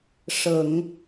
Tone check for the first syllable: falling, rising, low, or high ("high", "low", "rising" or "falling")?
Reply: low